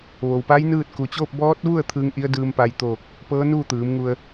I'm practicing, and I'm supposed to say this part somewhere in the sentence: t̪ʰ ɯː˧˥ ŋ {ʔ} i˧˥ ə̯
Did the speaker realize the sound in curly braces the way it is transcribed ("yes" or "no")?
yes